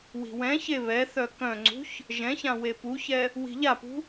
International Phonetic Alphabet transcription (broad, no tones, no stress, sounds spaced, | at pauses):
w i̤ w ɛ̃ ç e β ɛ θ œ k œ̃ ŋ͡ǀ ṳ ç | ʒ ɛ̃ ç ã w e p u ç ɛ | w i̤ ʎ a p ṳ